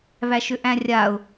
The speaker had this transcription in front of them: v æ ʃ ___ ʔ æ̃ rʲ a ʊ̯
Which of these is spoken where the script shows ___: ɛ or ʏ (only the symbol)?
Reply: ʏ